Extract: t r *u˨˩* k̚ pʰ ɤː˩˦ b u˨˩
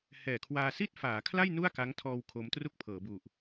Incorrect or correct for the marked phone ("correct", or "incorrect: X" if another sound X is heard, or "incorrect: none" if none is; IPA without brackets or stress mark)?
incorrect: u˥˩